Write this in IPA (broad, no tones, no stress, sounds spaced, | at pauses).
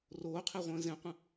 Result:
r oː qʰ e ʁʷ ə̃ː z ẽ qʷ ə̃